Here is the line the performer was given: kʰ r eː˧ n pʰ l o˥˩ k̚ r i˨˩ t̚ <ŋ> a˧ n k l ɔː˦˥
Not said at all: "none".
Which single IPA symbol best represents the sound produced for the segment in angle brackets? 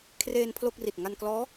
ŋ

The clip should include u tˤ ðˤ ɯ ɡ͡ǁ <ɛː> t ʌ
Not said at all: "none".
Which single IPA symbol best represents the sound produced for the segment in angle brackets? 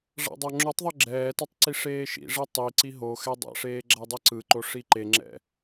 ɛː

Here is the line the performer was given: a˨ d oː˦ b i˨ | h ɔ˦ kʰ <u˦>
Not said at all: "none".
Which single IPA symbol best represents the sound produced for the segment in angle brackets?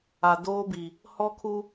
u˦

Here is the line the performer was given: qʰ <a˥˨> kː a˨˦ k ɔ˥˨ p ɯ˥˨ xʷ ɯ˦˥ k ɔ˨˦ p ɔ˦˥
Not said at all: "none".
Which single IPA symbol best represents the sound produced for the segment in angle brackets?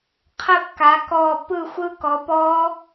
ə˥˨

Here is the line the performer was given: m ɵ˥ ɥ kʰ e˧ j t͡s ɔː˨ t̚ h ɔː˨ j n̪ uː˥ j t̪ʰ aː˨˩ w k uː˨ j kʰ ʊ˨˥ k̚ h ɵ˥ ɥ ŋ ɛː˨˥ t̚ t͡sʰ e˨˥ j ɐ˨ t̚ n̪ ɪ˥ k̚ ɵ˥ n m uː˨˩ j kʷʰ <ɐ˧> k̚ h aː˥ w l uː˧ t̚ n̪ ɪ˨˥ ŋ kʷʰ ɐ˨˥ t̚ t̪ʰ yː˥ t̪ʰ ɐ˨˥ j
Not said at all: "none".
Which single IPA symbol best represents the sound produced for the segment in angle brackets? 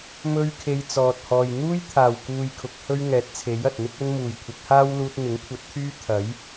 ɐ˨˥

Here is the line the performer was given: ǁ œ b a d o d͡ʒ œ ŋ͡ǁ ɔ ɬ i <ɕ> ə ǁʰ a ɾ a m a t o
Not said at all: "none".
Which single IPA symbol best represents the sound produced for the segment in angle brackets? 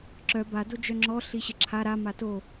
ɕ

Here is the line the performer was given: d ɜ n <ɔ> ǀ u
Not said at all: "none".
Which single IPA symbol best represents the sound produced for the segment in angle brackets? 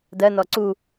ɔ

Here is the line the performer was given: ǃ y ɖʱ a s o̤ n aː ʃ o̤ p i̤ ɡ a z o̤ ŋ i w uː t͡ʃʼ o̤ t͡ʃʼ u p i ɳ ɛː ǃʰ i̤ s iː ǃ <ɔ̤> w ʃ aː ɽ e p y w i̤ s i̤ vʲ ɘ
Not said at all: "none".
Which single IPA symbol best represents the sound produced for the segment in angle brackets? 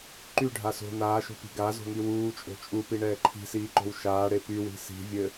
o̤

